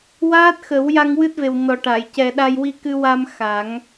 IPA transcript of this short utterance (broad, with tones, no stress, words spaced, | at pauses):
waː˦˥t̚xə˨˩˦w ja˧ŋwɨ˦˥t̚ve˨˩w nɔ˨˩ ʈa˨˩˨jcɛ˨˩ɗa˧j wi˧kɨ˧wa˧m xa˨˩˦ŋ